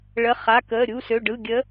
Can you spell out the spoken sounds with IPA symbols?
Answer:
ɭ ə˩˧˩ χ a˩˧˩ k əː˩˧˩ ɾʲ u˩˧˩ s ø˩˧˩ ɖ ɯ˩˧˩ ɡʲ ə˨˦

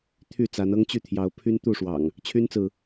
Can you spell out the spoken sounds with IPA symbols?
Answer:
t̪ʰ y˥˨ t͡s a˨˦ n ɤ˦ ŋ t͡ɕ y˥˨ t̪ʰ j ɑ˨˦ ʊ̯ pʰ y˦ n t̪ u˥˨ ʂ w ɑ̰˨˩ ŋ | t͡ɕʰ y˦ n t͡s ɹ̩˨

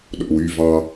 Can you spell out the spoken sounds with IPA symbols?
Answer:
ɗ o̰˨ w y˦˨ v ɑ˦

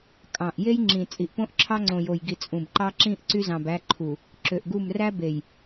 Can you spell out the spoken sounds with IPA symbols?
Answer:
kʼ ɑ̃˨ ʔ j e˦ j ŋ͡ǁ ĩ˨ t͡sʼ i˨ ʔ p õ˦ ʔ ǁʰ ɑ˦ ŋ͡ǀ õ˨ j o˨ j ɡ i˨ t͡sʼ ũ˨ b ǃ ɑ˦ ǁ ĩ˦ ʔ ǀ y˦ z ɑ̃˨ b æ˦ ǃʰ u˨ | ǁ ø˨ ʔ ɡ u˦˨ m r æ˦ b e˨ j

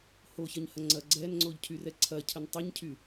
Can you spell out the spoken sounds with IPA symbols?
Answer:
h o ç ɐ ɲ h ɐ ŋ͡ǀ ɐ ɡ͡ǀ ɛ n ŋ͡ǀ o ʎ cʰ y r ɛ ǀʰ ɐ cʰ ə n tˤ ɛ ɲ cʰ y

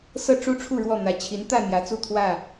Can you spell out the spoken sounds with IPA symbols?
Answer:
s ɤ˥˨ ʈ͡ʂ u˥˨ ʈ͡ʂʰ u˥˨ ɻ w ɔ˥˨ n̪ ä˨˩ t͡ɕʰ i˨˦ n t̪ ä˥˨ n̪ j ä˨˦ t͡s u˥˨ t̪ʰ w ä˥˨

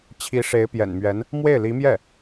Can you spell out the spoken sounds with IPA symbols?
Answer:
t͡ɕʰ i˧˥ ʂ e˧˥ ɪ̯ p j ɛ̰˨˩ n m ɥ ɛ˧˥ n | m w e˥˩ ɪ̯ l i˧˥ m j ɛ˥˩

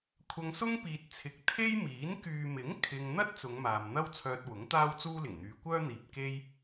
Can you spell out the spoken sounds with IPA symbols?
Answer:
kʷʰ ɐ˧ ŋ s ʊ˥ ŋ p iː˨ t̚ t͡sʰ ɪ˨ k̚ t̪ʰ e˥ j m iː˨˥ n k yː˨ m ɪ˨˥ ŋ kʰ ɪ˧ ŋ n̪ ɐ˥ t̚ t͡s ʊ˨˧ ŋ m aː˨ m n̪ ɐ˥ w t͡sʰ œː˧ t̚ w ʊ˨˥ ŋ t̪ aː˥ w t͡s uː˥ l ɪ˨˩ ŋ n̪ yː˨˧ kʷ œː˥ n̪ iː˨ p̚ k e˥ j

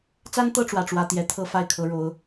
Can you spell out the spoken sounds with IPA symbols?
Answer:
t͡s a˥ n t̪ ɤ˥˧ ʈ͡ʂ w ä˥˩ ʈ͡ʂ w ä˥ t̪ j ɛ˧˥ t̪ʰ ɤ˥ f a˥˩ ɪ̯ kʰ ɤ˧˥ ɻ o˧˥ ʊ̯

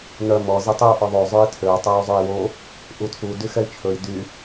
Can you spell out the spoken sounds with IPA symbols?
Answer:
n œ m ɔ z ɛ tˤ y u̯ ʔ ɔ ðˤ o zˤ ø i̯ tʰ ø u̯ tˤ æ u̯ zˤ ɵ i̯ w o | ʔ u tʰ u d y x ɛ i̯ t͡ʃʰ ɵ i̯ d y

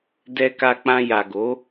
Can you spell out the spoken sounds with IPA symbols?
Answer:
d ɛ˧ k a˧ k͡p ã˧ j a˨ ɡ o˨˦

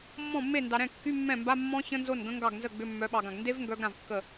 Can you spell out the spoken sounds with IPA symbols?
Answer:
mː ɔ̃˥˩ mː e˥˩ n d ɑ˨ ɾ ɛ̃˥˩ kː y˧˥˧ mː ɛ̃˥˩ m b a˧˥˧ mː ɔ̃˦˥ ç ə̃˧˥˧ n z o˥˩ n ɡ ə̃˦˥ ŋ ɡ ɑ˥˩ ɡ n z ə˥˩ ɡ͡b ʏ˧˥˧ mː œ˨˥ ɓ ɑ˨ ɡ ã˨ ɡ n d e˦˥ v ŋ ɡ œ˦˥ ɡ ɾ ã˥˩ v kː ə˥˩

